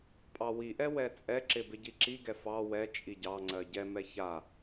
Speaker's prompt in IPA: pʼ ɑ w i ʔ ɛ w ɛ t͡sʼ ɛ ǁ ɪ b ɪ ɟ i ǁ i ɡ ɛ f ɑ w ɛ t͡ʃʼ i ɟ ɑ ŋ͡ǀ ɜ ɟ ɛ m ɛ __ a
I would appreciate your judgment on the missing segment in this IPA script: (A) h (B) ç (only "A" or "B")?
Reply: B